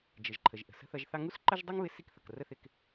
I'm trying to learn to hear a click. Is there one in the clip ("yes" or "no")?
yes